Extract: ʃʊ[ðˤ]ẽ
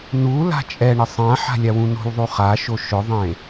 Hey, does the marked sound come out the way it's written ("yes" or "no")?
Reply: yes